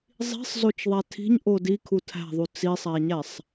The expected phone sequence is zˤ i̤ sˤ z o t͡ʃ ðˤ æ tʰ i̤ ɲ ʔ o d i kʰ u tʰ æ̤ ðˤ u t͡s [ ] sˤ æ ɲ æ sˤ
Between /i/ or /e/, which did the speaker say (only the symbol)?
i